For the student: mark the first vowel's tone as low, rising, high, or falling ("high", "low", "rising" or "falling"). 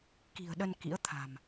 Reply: low